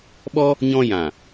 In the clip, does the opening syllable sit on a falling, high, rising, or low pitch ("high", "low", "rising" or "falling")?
high